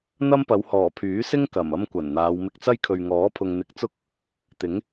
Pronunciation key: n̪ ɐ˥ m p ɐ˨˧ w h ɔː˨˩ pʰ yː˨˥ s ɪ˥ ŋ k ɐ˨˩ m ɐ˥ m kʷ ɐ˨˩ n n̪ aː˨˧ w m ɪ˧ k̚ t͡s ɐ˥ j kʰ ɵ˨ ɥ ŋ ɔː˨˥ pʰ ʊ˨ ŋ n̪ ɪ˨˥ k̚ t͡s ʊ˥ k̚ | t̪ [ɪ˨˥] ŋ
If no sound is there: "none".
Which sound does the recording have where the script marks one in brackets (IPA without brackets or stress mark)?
ɪ˨˥